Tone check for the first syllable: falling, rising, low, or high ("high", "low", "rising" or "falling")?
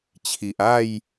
low